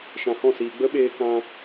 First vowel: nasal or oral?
nasal